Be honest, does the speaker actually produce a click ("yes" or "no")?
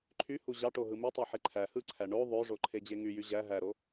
yes